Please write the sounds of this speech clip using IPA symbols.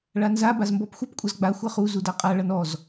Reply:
ɭanza bazmbɔpxʷʌp kʷʼʌzɡ͡ba xʷʌχu zudaqʼa ɭʌnɔz

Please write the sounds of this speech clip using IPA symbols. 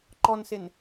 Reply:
ǃɔnsɪn

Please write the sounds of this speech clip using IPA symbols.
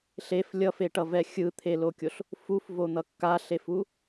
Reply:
ɬef lʲʌfeʈʌvɛ xʲɯt̪ʰelokʲoɬ | fufvon̪ʌ kːaɬefu

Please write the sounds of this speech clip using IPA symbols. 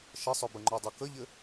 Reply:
ʃəsˤœbəŋ͡ǃœ dˤœkəʎɘ

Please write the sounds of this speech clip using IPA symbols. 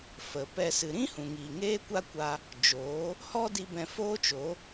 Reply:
fə˨pɛ˧ sɨ˨ɾĩ˦hũ˨ŋiː˨ ŋeː˦kʷa˦kʷa˧ | d͡ʒoː˨˦ | hɔ˦di˧ bɛ̃˧foː˦t͡ʃo˨˦

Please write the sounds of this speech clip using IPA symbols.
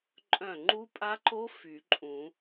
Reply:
ǃʼœ̃˧˩ŋ͡ǃu˦˥pʼa˦˥ǃo˦˥ fy˨˩˦ǃʼũ˨˩˦

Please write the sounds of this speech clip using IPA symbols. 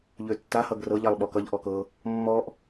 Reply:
ʎøtːa hʌɡrɤʎ alˠɓɔkʌʎ ʔɔkɤ | mːɔʔ

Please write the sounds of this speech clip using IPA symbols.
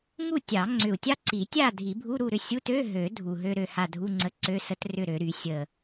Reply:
ŋu˥˨tʲɑ˨˩˦ŋ͡ǀʏ˨˩u̯ tʲɑ˥ǀi˨˩˦tʲa˥˨ dʱi˨˩˦bʱu˧˥˧ɾu˥˨ɾʏ˥˨ sʲu˧˥˧tø˧˥˧ɦø˨˩˦ dʱu˨˩ɦø˥ɾø˥˨ha˥˨ dʱu˧˥˧ŋ͡ǀə˧˥˧ǀø˧˥˧ sə˥trʏ˥˨ɾø˨˩˦ɾy˨˩˦ sʲə˨˩

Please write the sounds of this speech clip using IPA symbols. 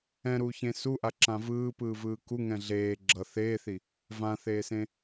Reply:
ɛ̃ɾuːçẽ suʔaǁã vɯːpɯːvɯː kuŋɛ̃ ɮeː ɡ͡ǁʌ θeːθi | vãθeːsẽ

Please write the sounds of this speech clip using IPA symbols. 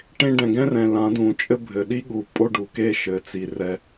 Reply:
ʈẽ˧ɖɛ̃˨ɡɛ̃˦rɛ̃˨ lã˨˦dũ˨ t͡ʃʼɘ˧ bʱɘ˨ɗi˦ɠu˨ pʼo˦ɖu˨ke˦ʃɘ˨˦ t͡si˨rɛ˧

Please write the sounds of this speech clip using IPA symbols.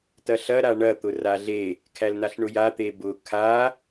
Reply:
tɐɬɐ ɾaɳɐ t̪ʊraɮe | kʰælnaɬɳʊja t̪ebʊ kʰa

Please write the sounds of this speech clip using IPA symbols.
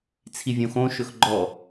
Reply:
t͡sʰivʲõxõ ʃɵxɡ͡ǃɔ

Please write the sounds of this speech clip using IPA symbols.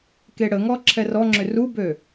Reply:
keɽəŋɔ ǁʰɛrɔŋ͡ǁʏ rubø

